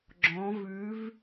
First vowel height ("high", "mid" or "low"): mid